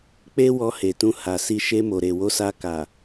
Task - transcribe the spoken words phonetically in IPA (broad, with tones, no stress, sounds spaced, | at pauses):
k͡p e˦ w ɔ˧ h e˨ t ũ˧ h a˨ s i˧ ʃ e˧ m o˨ ɾ e˨ w o˧ s a˧ k a˨